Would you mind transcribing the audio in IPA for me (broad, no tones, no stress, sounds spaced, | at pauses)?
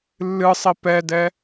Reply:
lː ɨ sˤ i p ɛ d ɛ